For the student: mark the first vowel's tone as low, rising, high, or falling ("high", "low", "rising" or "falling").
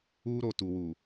high